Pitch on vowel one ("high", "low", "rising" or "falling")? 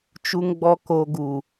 low